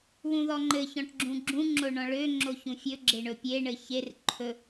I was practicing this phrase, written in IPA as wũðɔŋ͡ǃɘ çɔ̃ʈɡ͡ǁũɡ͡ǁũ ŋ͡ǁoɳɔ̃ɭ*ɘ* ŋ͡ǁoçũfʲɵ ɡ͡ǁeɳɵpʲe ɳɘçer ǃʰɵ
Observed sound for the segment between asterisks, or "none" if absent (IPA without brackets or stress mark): ø